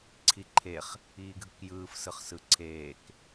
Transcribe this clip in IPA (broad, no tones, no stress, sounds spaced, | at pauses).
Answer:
ǀʰ i ǃʰ e χ | iː ɡʱ ɯ k j ɯː f s ɯ χ s ɯ ǀʰ eː k